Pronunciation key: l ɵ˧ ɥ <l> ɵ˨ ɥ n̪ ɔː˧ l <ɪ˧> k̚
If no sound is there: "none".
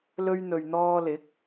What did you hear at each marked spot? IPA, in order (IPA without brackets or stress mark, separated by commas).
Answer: n̪, ɪ˨˥